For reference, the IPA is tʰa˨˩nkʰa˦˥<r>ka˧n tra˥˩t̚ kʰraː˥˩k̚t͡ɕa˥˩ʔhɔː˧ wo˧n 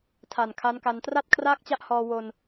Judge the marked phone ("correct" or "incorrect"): incorrect